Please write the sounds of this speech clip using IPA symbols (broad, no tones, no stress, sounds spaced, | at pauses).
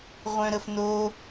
ʁʷ œ̃ ɾ ə f n o